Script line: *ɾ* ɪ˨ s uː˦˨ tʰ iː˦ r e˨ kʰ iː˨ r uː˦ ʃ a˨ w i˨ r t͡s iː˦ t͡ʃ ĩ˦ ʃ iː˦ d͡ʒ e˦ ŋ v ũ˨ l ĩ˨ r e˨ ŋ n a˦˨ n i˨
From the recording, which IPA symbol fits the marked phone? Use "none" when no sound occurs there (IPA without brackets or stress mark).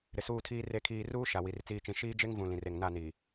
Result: ɾ